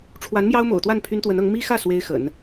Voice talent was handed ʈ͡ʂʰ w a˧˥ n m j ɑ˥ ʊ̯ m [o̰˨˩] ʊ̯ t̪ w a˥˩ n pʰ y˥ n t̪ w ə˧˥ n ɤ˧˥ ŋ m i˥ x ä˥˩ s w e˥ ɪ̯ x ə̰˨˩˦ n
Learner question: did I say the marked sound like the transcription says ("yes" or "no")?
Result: yes